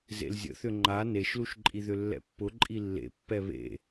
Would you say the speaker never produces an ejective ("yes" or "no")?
no